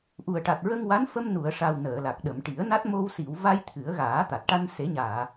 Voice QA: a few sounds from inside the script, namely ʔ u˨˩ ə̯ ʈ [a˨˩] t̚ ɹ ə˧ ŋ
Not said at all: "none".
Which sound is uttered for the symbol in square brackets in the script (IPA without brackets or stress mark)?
a˨˩